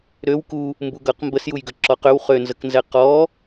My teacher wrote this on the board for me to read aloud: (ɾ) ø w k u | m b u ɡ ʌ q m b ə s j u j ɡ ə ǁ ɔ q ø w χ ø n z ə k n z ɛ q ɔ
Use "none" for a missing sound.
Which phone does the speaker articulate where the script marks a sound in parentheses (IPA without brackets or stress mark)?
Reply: ɾ